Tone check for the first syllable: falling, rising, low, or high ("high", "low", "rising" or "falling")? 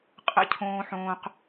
high